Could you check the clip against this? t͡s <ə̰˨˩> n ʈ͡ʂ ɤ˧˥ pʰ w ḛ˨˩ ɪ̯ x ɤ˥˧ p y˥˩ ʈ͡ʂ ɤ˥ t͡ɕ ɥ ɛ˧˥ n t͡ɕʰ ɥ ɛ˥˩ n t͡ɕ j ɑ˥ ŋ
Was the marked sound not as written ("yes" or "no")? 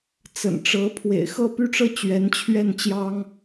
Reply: no